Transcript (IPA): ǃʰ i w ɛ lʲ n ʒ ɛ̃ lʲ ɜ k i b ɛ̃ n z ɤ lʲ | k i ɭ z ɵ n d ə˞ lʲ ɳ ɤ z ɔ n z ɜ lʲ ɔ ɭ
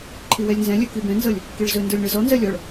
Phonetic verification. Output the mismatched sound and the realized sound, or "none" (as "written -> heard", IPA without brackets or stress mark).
ʒ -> z